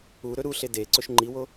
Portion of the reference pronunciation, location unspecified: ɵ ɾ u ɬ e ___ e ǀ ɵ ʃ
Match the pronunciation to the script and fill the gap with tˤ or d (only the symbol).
d